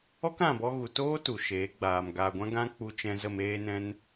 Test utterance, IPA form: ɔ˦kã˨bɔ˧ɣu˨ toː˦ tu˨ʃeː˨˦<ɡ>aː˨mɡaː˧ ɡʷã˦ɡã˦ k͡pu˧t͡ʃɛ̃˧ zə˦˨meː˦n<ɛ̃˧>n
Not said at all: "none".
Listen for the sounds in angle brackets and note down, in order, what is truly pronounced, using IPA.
ɡ͡b, ɛ̃˦

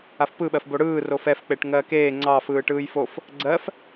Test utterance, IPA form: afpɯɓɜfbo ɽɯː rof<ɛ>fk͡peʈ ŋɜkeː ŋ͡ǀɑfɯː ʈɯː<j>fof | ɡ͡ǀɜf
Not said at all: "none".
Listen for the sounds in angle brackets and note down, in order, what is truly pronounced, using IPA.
ɛ, j

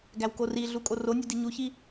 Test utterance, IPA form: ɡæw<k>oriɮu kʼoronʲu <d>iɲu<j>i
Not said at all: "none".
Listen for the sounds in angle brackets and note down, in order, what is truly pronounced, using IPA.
k, d, ç

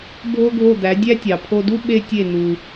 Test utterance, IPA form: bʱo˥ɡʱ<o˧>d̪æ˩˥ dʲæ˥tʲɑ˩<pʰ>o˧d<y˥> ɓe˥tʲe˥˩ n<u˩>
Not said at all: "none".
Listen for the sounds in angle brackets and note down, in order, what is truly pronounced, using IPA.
o˥˩, pʰ, u˥, u˩

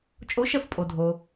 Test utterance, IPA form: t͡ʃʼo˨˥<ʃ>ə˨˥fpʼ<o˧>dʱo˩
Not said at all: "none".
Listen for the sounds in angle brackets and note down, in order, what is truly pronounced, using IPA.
ʃ, o˩

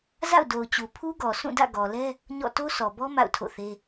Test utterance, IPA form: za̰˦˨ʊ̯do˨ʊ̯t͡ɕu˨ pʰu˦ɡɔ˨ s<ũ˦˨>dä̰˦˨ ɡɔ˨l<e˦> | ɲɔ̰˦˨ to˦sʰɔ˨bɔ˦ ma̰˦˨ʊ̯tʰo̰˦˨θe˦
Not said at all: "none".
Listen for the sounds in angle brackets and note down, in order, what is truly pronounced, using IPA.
ũ˦˨, ɛ˦

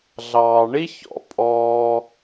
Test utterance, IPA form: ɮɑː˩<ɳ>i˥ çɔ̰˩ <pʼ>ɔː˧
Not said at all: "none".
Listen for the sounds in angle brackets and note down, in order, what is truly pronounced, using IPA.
ɳ, pʼ

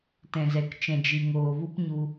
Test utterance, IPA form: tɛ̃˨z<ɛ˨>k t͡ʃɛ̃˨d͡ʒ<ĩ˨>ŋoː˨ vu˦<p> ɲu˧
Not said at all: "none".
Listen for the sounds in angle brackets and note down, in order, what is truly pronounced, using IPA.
ɛ˨, i˨, p

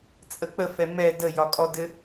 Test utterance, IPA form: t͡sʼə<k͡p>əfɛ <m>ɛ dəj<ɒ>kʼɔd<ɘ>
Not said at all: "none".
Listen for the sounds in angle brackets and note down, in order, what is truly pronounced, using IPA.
k͡p, m, ɒ, ɘ

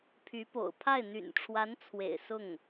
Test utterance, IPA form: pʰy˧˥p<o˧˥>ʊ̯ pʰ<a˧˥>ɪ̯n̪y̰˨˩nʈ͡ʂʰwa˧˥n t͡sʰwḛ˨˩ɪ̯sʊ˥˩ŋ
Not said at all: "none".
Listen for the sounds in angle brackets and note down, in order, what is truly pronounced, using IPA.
o̰˨˩, a˥˩

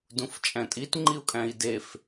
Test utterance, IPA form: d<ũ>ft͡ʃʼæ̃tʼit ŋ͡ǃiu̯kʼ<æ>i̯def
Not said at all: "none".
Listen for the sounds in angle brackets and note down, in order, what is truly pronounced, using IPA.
ũ, æ̃

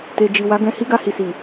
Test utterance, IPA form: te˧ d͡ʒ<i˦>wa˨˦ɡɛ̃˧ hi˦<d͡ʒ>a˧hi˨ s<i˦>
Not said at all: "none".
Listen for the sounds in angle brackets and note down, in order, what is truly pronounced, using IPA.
i˨, ɡ, i˨

